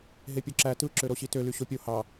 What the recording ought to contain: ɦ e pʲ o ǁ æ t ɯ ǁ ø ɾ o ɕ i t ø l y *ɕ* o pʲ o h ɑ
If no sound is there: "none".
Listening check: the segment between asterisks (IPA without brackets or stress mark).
ɕ